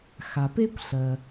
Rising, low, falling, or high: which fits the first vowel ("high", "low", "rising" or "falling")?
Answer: low